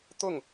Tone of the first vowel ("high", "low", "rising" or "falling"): falling